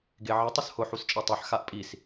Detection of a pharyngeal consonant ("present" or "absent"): present